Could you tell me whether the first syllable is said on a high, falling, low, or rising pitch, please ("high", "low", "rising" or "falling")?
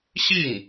falling